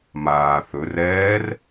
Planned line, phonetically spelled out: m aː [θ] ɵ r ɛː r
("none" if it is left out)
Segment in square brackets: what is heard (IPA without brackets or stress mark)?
θ